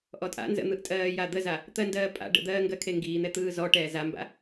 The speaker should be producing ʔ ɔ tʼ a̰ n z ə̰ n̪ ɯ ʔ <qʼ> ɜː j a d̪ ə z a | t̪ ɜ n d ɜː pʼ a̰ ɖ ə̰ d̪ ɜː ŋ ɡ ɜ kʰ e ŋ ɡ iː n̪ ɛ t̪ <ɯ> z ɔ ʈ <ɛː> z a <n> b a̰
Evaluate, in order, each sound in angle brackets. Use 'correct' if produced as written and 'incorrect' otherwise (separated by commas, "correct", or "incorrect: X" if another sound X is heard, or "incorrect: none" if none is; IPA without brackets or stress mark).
incorrect: tʼ, incorrect: ɯː, correct, incorrect: m